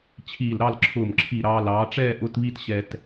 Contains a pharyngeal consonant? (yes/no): no